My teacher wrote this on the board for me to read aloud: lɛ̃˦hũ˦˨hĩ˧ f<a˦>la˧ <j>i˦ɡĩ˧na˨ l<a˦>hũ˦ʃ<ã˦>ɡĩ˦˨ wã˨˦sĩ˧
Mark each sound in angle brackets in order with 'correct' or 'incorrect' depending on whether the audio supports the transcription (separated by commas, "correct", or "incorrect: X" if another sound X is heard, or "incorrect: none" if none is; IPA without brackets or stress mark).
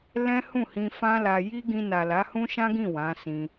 incorrect: ã˦, correct, incorrect: a˨˦, correct